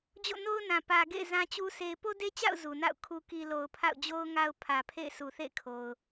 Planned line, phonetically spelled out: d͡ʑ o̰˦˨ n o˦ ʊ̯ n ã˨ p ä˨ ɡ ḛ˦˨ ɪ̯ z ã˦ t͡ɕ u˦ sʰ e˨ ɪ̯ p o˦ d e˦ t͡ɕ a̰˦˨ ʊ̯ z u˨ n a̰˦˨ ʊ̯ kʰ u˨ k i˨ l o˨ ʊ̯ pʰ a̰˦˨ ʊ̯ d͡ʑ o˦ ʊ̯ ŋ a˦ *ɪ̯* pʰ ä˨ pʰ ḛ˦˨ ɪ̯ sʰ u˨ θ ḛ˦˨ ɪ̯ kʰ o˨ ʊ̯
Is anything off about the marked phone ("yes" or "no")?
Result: yes